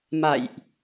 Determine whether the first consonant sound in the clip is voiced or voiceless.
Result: voiced